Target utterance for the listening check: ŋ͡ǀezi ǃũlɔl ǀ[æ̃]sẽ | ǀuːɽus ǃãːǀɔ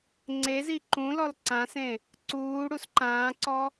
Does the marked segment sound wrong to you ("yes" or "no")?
yes